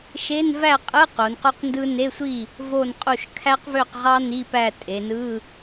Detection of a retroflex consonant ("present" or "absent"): absent